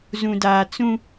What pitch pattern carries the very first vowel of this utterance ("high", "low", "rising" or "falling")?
low